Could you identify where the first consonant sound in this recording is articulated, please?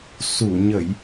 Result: alveolar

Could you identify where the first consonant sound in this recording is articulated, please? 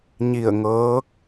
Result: palatal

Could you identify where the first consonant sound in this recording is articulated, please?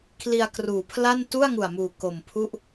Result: velar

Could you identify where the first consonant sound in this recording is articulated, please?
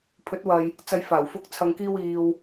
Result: labial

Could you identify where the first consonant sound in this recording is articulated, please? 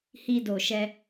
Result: glottal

